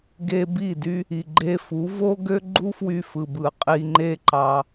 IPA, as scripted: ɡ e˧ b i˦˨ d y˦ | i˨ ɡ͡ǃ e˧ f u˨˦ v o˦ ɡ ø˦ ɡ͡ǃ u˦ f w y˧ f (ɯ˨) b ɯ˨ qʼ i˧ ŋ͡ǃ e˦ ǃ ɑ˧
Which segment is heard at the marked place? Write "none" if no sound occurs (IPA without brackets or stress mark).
ɯ˨